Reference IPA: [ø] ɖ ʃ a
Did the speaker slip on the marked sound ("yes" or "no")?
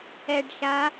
yes